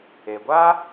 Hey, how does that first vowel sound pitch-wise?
low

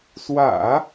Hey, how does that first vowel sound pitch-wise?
low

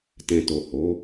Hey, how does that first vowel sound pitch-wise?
low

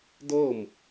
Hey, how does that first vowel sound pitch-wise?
falling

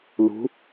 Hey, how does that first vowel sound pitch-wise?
rising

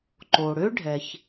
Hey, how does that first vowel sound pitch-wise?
low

